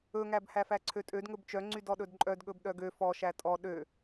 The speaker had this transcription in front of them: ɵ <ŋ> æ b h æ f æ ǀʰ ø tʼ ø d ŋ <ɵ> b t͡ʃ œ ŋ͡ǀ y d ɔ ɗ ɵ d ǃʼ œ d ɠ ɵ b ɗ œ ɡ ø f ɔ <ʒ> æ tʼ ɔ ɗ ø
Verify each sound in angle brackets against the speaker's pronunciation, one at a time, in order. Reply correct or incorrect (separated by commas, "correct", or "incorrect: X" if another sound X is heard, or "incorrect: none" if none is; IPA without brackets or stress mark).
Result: correct, correct, incorrect: ʃ